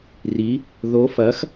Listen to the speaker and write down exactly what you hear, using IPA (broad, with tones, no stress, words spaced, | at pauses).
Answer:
ri˧˥ | ðo˧˥fɐ˧˥x